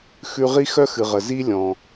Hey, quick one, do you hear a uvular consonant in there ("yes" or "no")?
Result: yes